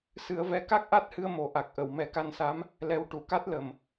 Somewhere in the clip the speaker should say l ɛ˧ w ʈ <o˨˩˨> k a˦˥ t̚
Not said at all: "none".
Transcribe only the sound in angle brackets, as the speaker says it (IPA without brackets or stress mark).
u˨˩˨